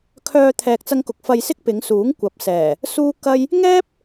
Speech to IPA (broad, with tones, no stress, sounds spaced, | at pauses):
kʰ œː˧ t̪ʰ ɛː˨ k̚ t͡s ɐ˧ ŋ k ʊ˨ k̚ f ɐ˧ j s ɪ˥ k̚ p ɪ˨˧ ŋ s uː˨˥ ŋ kʷ ɐ˨ p̚ s ɛː˨˩ | s uː˥ k ɐ˥ j | ŋ ɛː˥ p̚